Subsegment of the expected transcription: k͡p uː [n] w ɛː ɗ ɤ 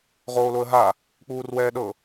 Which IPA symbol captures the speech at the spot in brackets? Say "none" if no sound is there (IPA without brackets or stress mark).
r